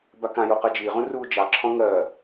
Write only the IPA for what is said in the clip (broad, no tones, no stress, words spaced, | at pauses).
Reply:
bakãjo qɜd͡ʒiʁũ ruːd͡ʒɑǁʰɔ̃ ŋɜ